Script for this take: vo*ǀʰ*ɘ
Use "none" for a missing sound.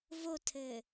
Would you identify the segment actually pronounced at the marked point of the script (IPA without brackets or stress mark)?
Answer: tʰ